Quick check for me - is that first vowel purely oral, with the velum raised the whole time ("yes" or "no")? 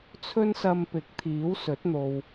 yes